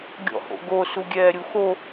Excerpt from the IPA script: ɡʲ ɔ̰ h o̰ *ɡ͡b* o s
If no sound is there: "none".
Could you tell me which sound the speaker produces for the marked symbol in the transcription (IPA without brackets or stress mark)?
ɡ